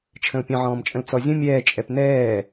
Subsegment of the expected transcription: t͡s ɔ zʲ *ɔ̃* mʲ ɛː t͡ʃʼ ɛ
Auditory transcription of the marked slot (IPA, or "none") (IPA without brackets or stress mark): ə̃